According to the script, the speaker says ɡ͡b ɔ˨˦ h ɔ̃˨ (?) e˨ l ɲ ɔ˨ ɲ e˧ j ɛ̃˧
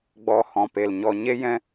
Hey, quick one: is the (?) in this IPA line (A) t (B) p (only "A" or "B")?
B